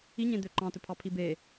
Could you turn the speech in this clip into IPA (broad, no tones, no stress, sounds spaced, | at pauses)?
i ɲ ẽ d̪ ø ǃ ɑ̃ t ɵ pʰ ɑ pʰ i b e